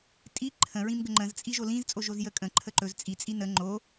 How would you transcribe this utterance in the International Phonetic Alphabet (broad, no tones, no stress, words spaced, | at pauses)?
tʼi ǃʰə̃ɹĩmɡə ŋ͡ǃə̃zt͡sʼi ʒolĩzt͡sʼo ʒozjəkʼə̃ ǃʰəǃɵz t͡sʼit͡sʼi nə ŋ͡ǃo